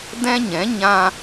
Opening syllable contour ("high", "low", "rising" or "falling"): high